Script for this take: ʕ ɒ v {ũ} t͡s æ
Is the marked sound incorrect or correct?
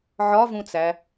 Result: correct